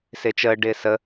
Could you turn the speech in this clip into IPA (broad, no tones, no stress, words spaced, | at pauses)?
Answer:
sɪːt͡ʃəː ɖɪːsə